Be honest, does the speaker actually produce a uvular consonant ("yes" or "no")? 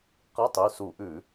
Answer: yes